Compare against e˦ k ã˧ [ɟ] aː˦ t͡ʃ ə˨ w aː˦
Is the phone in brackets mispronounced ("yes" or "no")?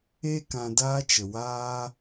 yes